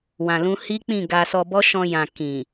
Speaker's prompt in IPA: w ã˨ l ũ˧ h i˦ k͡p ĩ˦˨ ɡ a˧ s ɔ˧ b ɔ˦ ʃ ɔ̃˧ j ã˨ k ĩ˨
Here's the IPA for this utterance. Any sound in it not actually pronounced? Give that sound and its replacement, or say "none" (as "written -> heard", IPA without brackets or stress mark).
none